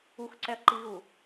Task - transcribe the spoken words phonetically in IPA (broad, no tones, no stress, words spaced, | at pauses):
uxǀɛɐ̯ǃiɣu